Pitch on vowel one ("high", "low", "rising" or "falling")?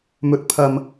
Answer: low